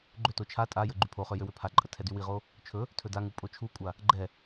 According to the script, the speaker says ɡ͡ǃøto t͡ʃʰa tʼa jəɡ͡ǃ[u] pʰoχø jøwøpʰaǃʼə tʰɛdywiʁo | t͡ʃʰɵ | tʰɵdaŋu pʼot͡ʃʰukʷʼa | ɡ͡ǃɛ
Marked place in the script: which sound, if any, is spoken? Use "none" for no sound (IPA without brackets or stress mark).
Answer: y